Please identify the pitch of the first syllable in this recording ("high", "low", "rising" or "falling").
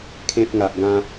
high